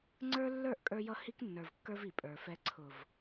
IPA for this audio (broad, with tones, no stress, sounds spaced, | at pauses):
ŋ͡ǀ ə˞˦ lː ə˞˦˨ ʔ kʼ ə˞˦ j ʌ˦ h i˦ k nː ə˞˨ v kː ə˞˦ v i˨ pʼ ə˞˨ f ɛ˦ ǀʰ ʊ˨ v